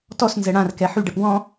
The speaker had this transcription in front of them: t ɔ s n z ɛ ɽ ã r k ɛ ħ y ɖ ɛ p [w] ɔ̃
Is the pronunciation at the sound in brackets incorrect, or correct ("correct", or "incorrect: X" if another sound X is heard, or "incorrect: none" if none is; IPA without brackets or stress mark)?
correct